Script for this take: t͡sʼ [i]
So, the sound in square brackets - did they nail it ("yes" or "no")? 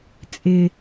no